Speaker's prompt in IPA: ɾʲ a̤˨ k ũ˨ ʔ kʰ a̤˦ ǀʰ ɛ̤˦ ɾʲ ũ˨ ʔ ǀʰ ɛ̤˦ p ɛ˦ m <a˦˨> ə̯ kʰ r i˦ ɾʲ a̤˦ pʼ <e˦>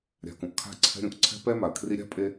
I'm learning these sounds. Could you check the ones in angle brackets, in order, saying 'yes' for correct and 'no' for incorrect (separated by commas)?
no, yes